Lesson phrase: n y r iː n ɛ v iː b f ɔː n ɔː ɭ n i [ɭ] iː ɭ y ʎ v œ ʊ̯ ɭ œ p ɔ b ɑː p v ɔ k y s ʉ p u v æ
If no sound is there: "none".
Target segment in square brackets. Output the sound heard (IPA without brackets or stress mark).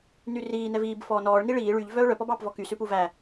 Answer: ɭ